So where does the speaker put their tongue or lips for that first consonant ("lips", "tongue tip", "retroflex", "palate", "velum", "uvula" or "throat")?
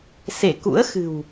tongue tip